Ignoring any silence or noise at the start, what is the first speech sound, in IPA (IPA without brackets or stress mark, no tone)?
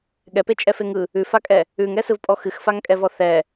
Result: ɠ